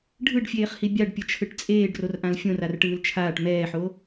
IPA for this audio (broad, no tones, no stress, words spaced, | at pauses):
ɖʱɯɖfʲeːχhi bʲaɖpʲʌt͡ʃʰɯʈ t͡sʼeːɖrorʔãl fʲõrarʈɯːl t͡ʃʰaːʈ mɛːħo